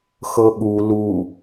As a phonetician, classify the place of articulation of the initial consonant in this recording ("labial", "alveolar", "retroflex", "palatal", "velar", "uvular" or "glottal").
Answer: velar